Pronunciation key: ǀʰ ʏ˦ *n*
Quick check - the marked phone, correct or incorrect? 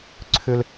incorrect